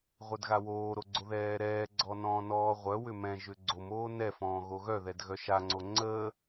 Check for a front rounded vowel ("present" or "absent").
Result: present